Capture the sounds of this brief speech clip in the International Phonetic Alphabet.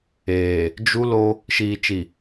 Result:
eː˨ | d͡ʒ u˦ l o˦ | ʃ iː˨ t͡ʃ i˨

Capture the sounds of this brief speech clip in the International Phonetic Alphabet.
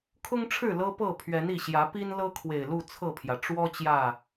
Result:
kʰ ʊ˦ ŋ ʈ͡ʂʰ ɻ̩˥˨ l ɤ˦ p ɤ˥˨ pʰ ɥ ɛ˨˦ n i˨˩ ɕ j ä˨˦ p i˦ n l ɤ˦ kʰ w e˨˩ ɪ̯ l u˥˨ t͡sʰ ɤ˥˨ pʰ j ä˩ ʈ͡ʂ w ɔ˦ t͡ɕ j ä˥˨

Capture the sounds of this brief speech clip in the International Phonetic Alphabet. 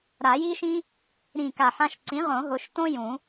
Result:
ɾ a˨˩˦ j i˦ ʃ ĩ˦ | ɾ ĩ˧˩ k a˧˩ ħ ã˦ ʃ ǀ ĩ˩˥ ʁ õ˨˩˦ ɦ ʊ˩˧˩ ʃ t õ˦ j ũ˨˩˦

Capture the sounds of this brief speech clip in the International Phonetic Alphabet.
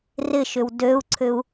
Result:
r ɪ ʃ ʏ w d ø u̯ ǀʰ ʏ u̯

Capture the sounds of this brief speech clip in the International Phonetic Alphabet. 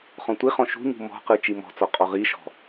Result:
χ ɔ̃ tʷ i χ ɔ̃ ʃ ṳ ɲ ṳ m ɔ̤ q ɯ t͡ʃ i m ɔ̤ t͡s ɔ qʼ ɔ ʁ i ʃ ɔ̤

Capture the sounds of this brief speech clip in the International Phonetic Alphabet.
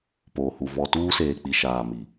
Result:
p oː˨ h u˨ v ɔ˨ t uː˦ s eː˨ k͡p i˨ ʃ aː˨ m i˨

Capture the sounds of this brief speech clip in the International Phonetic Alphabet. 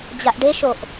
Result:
d͡ʑ a ʔ ɖ e ʃ o ʔ

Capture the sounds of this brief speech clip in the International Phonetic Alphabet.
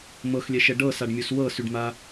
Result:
m ɤ x lʲ ɛ ʃ ɛ ɖ ɤ s a ɖ mʲ u s w ɤ s y ɖ m a

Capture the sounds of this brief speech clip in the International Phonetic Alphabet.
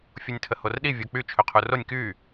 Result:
fʲ u nʲ tʰ ə h o r ɗ i vʲ o k͡p y t͡ʃʰ ø qʰ u r o nʲ k y

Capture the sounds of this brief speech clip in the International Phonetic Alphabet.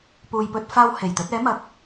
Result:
p uː˨ j p ɵ˧ t̚ f aː˧ w h e˨˩ j t̪ ɵ˨˥ t̚ ɛː˨˥ m ɐ˨ k̚

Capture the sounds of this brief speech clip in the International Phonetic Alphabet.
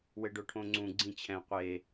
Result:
w ɘ ɖ o ʈʰ õ ŋ͡ǀ ũ ɡ͡ǀ ĩ t͡ɕʰ ɛ̃ qʷ e

